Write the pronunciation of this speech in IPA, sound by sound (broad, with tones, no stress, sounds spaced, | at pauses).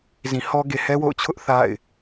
z ĩ˨ h ɔ˦ ɡ e˨ h ɛ˦ w o̰˦˨ ʊ̯ t͡ɕʰ ʊ˦ ʔ θ a̰˦˨ ɪ̯